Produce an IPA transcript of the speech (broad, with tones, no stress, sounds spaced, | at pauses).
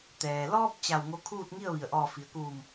t̪ ɛː˩ l ɔː˧ p̚ t͡ɕ a˧˩ w ŋ o˧ kʰ uː˥˨ t̚ ŋ i˥˨ ə̯ ʋ i˩ ə̯ ʔ ɔː˧˩ f i˩ ə̯ k uː˧˩ m